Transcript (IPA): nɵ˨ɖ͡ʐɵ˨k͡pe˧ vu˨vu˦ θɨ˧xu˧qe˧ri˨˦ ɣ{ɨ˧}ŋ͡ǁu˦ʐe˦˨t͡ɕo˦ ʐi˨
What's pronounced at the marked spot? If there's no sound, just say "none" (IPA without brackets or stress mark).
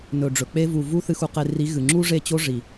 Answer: ɨ˨